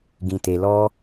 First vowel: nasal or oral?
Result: nasal